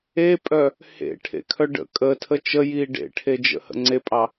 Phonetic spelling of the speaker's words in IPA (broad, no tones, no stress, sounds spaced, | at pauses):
e pʼ œ | h ḛ ʈʰ ḛ kʰ œ ɖ ə̰ kʼ ə tʰ ə t͡ʃ ə j iː ɖ ḛ ʈʰ e d͡ʒ ə̰ h ə̰ ŋ͡ǀ e pʼ ɑ